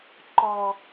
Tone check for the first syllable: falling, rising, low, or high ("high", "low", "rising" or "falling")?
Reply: high